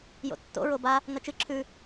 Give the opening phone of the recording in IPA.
j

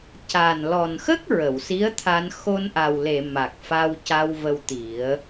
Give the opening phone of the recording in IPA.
c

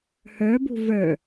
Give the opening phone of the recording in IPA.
h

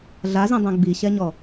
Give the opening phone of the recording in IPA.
ɮ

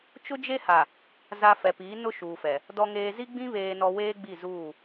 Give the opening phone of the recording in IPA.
t͡ʃ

